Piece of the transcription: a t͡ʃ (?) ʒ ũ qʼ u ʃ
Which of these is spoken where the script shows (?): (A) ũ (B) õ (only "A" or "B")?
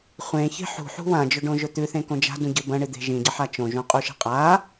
B